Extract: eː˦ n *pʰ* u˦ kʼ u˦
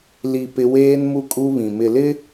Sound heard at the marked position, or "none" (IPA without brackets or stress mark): m